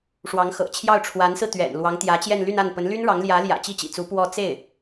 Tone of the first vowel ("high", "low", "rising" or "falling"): rising